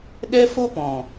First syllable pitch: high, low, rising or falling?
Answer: high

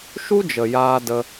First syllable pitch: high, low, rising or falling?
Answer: high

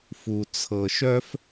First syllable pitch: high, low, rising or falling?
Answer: low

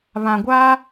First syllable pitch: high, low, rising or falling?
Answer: low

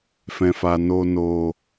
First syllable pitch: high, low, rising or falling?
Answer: low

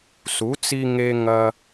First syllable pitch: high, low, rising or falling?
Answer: rising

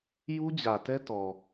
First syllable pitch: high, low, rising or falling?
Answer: high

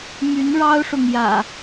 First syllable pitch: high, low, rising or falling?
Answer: rising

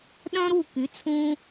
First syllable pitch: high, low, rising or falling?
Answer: high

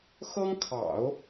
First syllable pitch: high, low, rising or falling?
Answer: high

